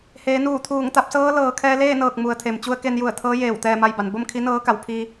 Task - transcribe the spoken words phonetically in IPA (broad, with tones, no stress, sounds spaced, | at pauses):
h eː˩˧ n uː˧˩ t̪ʰ uː˧˩ ŋ t̪ a˧ p̚ s ɤː˧˥ l ɤː˩ kʰ ɛː˧ l eː˥˨ n ɤː˧˩ k̚ m u˩ ə̯ t̪ʰ e˩ m t͡ɕ u˧ ə̯ k e˧ n j u˧˩ ə̯ t̪ʰ ɤː˧˥ j eː˧˩ w t̪ ɛː˥˨ m a˥˨ j b a˩˧ n b o˥˨ m kʰ i˧˥ n ɤː˧˥ k a˩˧ w pʰ i˧